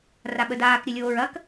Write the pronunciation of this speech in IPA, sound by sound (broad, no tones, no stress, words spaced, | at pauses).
raɓədaːk ɾʲəlʲoːɹɐk